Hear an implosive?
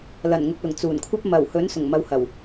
no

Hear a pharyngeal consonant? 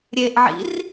yes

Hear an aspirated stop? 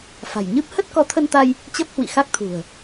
yes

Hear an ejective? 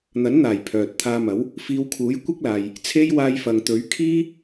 no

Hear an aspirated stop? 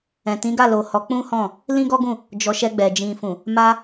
no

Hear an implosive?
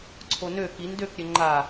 no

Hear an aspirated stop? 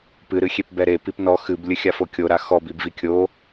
no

